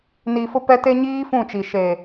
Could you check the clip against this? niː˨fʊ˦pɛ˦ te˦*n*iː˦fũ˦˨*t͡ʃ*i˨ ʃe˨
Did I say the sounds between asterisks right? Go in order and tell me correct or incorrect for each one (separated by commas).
incorrect, correct